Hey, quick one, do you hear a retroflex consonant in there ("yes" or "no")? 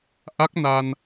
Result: no